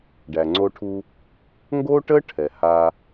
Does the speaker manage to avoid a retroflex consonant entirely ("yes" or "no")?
no